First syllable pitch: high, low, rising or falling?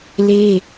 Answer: high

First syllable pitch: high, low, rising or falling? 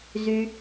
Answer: low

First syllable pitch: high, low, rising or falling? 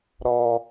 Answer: high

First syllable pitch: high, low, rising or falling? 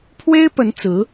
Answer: high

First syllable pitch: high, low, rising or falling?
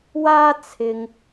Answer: high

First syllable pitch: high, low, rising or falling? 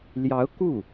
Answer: rising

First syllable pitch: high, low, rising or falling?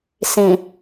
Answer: low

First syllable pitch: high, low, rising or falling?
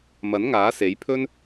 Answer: rising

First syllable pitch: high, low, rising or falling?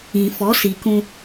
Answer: low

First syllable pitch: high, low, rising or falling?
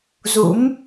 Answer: rising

